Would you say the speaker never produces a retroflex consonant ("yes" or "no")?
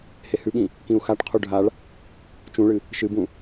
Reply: no